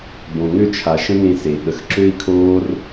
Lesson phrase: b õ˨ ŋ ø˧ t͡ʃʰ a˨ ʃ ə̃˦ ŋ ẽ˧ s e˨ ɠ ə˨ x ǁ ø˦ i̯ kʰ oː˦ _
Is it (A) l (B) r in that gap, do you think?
B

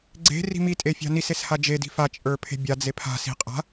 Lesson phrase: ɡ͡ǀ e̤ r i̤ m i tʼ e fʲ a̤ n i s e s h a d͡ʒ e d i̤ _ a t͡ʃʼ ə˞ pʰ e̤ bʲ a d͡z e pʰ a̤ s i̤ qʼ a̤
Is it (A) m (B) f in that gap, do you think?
B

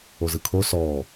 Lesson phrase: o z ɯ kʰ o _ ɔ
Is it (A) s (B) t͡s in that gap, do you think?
A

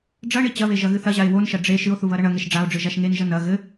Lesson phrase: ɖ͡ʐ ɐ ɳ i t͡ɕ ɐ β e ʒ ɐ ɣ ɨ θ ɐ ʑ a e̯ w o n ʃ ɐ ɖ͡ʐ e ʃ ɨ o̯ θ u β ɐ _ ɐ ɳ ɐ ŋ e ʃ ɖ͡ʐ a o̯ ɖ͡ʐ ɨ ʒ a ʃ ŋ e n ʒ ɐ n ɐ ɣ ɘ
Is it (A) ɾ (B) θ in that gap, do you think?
A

